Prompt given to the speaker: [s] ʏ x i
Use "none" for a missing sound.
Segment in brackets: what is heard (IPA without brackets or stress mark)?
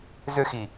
z